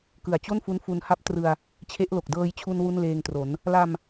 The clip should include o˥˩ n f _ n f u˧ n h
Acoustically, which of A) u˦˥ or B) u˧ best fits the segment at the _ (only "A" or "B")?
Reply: A